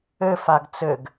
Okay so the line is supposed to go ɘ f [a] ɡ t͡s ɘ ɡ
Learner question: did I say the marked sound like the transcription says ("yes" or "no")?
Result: yes